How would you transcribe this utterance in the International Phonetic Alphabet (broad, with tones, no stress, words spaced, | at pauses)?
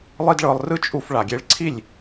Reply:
lˠi˦dɭɤ˧lˠ rɯ˦t͡ʃʼu˧f ɭa˨ɡʲe˧ɭ ǀʰi˦˨lʲ